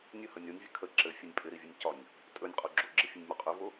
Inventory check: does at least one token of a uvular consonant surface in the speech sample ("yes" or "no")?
yes